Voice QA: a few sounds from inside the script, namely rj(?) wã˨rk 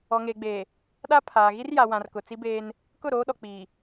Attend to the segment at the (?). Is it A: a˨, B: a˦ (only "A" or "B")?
A